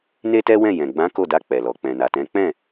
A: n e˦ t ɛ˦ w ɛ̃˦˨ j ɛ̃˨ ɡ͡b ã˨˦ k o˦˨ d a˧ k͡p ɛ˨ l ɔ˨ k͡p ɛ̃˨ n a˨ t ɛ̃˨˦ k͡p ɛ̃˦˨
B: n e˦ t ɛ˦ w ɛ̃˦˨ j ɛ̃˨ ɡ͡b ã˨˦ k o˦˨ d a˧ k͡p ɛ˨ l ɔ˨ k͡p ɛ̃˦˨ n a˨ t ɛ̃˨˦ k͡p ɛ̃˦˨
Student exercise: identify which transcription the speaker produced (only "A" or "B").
A